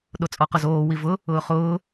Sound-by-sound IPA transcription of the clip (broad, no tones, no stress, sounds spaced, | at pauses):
ɗ o t͡sʼ ɔ q ʊ z oː w i v ʊ | ʊː χ ʊː